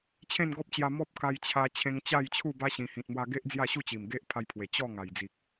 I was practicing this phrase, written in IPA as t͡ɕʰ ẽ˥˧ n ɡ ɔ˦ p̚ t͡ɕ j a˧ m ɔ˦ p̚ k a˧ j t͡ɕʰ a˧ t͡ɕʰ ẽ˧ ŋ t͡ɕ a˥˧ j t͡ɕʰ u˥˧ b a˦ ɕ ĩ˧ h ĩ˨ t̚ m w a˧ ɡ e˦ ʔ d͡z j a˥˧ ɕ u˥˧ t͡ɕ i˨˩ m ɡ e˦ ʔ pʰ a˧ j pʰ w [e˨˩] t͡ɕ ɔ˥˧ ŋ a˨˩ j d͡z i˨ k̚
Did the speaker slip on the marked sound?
no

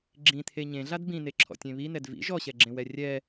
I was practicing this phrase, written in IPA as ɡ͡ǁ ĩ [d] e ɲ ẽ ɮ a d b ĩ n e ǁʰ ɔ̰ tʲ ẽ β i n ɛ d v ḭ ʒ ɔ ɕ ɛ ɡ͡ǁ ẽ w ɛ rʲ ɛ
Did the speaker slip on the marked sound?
yes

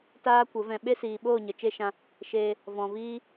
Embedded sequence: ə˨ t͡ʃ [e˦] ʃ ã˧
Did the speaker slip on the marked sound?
no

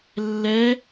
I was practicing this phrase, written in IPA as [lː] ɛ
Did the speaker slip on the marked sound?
no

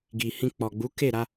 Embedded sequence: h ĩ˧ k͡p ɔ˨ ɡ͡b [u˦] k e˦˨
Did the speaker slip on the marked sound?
yes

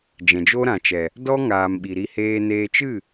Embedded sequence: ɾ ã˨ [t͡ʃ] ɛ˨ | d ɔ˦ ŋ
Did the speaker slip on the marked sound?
no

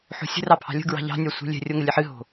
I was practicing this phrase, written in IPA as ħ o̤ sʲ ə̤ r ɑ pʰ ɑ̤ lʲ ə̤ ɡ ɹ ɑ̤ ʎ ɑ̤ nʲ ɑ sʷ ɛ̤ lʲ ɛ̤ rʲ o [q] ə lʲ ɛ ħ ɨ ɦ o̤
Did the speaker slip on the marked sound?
yes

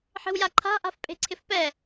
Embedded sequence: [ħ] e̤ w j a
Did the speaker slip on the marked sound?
no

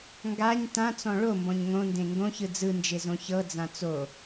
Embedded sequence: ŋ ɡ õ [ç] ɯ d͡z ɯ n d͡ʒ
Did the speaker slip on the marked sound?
no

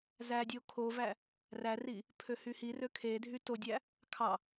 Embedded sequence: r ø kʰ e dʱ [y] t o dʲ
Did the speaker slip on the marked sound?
no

